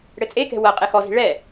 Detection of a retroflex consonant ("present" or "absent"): present